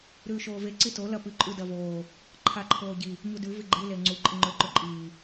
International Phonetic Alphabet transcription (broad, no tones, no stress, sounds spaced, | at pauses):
ɾ ʉː ʃ oː v e ǀ i t o l ɐ p ɨ ǃʼ ʉ d ɐ v oː | ǃʰ a ǃʰ oː ɟ i | ɲ u d ʉ v i ɡ͡ǃ ɨ l e ŋ͡ǀ u ǃʼ ɨ ŋ͡ǃ ɵː ǃ ɵ ǃʼ iː